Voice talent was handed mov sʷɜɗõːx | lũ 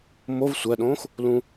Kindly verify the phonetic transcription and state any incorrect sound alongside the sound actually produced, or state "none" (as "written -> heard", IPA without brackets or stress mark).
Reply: none